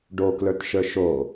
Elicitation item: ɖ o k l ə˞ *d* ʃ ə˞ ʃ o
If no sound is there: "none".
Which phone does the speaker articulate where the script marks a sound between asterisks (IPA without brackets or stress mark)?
t